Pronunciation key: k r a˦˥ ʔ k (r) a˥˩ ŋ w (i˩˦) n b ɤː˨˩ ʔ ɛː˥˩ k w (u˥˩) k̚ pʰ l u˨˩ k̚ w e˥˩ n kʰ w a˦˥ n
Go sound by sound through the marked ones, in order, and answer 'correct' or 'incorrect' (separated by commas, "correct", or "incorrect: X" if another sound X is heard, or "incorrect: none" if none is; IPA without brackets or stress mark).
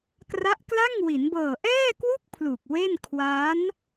incorrect: l, correct, correct